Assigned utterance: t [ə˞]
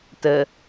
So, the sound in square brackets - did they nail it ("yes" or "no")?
no